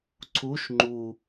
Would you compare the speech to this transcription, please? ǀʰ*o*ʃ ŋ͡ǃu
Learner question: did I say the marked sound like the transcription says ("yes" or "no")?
no